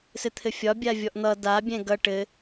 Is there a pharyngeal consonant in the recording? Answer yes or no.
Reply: no